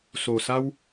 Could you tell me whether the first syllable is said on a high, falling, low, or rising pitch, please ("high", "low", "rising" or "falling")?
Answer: low